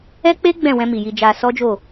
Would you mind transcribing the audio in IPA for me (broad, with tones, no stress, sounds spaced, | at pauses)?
ɛ˦ k͡p e˦ ɡ͡b ɛ̃˦˨ w ɛ̃˧ m i˨ j i˧ d͡ʒ a˧ s ɔ˦ d͡ʒ o˦˨